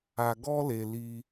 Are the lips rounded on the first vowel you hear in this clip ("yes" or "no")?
no